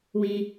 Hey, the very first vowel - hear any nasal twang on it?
yes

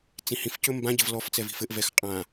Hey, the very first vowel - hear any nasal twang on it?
yes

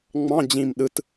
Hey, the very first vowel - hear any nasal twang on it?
yes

